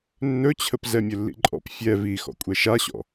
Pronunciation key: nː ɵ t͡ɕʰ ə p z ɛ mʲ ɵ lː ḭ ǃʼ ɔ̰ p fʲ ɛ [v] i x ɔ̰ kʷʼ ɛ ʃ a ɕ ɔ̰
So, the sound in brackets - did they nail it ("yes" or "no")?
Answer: yes